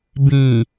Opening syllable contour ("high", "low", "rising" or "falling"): low